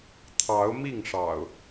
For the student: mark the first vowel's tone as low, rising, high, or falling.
rising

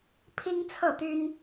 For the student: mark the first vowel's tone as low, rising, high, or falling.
high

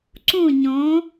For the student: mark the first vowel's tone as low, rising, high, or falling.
falling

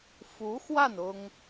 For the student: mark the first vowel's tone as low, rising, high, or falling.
rising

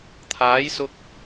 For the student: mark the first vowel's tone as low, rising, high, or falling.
rising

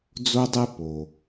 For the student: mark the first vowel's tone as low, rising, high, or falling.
high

